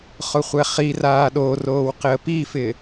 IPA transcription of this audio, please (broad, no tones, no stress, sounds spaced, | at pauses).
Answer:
χ ʊ χʷ ɛ χ i r aː ɗ o r oː w q ɪ ə̯ p i f ɪ